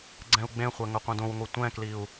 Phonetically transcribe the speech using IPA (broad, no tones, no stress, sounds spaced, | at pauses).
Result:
ɡ͡ǀ ɛ̃ u̯ ɡ͡b ẽ χʷ ɛ ŋ ɵ qʷ ɛ̃ d õ w ŋʷ ɛ tʷ ɛ̃ k l i u̯